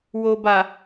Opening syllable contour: low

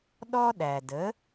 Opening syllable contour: high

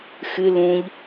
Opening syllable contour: low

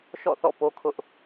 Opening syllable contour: falling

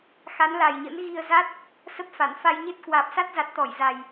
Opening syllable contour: rising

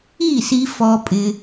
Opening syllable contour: falling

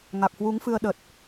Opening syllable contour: low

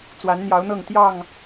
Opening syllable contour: rising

